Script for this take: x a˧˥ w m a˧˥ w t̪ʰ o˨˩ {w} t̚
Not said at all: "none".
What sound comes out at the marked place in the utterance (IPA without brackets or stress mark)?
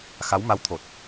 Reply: none